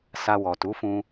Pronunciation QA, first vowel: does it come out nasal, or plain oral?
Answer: oral